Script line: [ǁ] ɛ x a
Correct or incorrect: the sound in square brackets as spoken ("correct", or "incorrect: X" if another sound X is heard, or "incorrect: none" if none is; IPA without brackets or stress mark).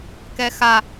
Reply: incorrect: k